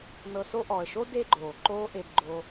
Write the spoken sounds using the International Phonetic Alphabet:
n ɤ˧ s o˦ ʔ ɔ˨ ə̯ ʃ o˦ d e˦ ɡ͡ǃ oː˨ ǃ oː˦ ʔ e˧ b ɡ͡ǃ o˧

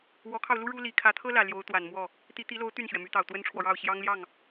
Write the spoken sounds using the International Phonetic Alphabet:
w ɔ˧˥ kʰ ɑ˧ ʊ̯ l u˥ ɻ u˥ l i˨˩ kʰ ä˧˥ t̪ʰ ɤ˥ l ä˨˩ l j o˧˥ ʊ̯ t̪ w a˨˩ n m w ɔ˥˩ | t̪ i˧˥ t̪ i˧˥ l o˧˥ ʊ̯ t̪ y˥˩ n ɕ ɥ ɛ˩ m y˧˥ t̪ ɑ˨˩ ʊ̯ t̪ w ə˥ n ʈ͡ʂʰ w ɔ˨ ɻ ɑ˥˩ ʊ̯ ɕ j ɑ˥ ŋ l j ɑ˥˩ ŋ

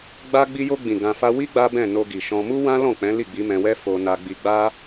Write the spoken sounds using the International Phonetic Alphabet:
ɡ͡b a˦ ɡ͡b i˧ j o˧ ɡ͡b ĩ˨ ɡ ã˧ f a˦ w i˦ ɡ͡b a˦ b ɛ̃˦˨ n o˧ ɡ i˨ ʃ ɔ̃˧ m u˦ w ã˦ l ɔ̃˦˨ k͡p ɛ̃˨˦ l i˦˨ ɡ͡b i˨˦ m ɛ̃˧ w ɛ˦ f o˧ n a˧ ɡ͡b i˧ ɡ͡b a˦

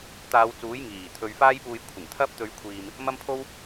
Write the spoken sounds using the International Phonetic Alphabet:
t̪ aː˨˧ w t͡s uː˨˥ j ŋ iː˨˩ t̪ʰ ɵ˨ ɥ f aː˥ j p uː˧ j kʷʰ ɪ˨˩ ŋ t̪ʰ ɐ˥ p̚ t̪ ɵ˧ ɥ kʷʰ iː˧ m | m ɐ˥ m pʰ o˥ w

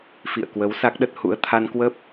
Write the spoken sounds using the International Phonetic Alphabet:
f ḭ˧˨ ə̯ k w ə˨˦ w s a˦˥ k̚ ɗ ə˦˥ t̚ h ṵ˧˥ ə̯ t̪ʰ a˧ n k w ə˦˥ p̚

